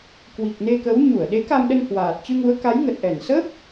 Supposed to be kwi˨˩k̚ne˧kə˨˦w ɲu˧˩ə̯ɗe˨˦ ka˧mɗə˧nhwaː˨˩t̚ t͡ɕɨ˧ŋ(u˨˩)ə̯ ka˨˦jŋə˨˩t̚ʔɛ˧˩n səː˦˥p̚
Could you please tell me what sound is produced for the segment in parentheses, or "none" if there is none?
u˨˦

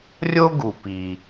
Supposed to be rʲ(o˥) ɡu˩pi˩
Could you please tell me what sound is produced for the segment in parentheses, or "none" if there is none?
o˥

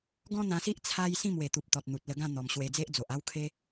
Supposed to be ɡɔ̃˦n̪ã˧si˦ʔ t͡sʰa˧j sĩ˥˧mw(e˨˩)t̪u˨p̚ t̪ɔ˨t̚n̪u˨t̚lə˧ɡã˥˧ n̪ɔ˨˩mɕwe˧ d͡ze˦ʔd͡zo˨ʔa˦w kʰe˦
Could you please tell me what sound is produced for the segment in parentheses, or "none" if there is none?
e˨˩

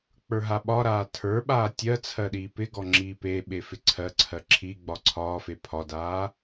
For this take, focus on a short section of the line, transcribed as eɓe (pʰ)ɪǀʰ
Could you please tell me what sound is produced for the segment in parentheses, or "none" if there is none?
f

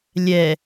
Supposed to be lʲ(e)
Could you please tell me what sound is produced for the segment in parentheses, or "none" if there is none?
ɛ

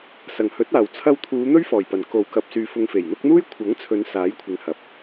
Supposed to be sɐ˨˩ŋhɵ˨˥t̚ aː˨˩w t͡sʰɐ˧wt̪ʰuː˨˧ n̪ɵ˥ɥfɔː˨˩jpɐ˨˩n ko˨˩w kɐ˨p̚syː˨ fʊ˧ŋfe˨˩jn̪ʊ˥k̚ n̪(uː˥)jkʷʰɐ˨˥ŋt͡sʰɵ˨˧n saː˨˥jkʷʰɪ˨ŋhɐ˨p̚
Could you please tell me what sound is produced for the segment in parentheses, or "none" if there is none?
uː˥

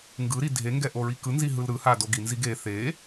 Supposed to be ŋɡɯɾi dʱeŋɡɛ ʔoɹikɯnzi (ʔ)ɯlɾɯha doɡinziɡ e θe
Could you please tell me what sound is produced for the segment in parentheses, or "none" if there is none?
ɦ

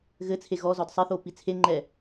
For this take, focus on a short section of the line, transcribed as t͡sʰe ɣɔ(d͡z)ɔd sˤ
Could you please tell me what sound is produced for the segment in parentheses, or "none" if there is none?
z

